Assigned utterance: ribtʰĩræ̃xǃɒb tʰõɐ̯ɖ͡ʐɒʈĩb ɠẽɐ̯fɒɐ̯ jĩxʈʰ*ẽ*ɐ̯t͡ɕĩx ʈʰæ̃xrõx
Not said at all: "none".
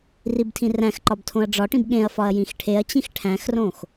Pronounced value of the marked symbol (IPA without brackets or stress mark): e